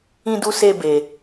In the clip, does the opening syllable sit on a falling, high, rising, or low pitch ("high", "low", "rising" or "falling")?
high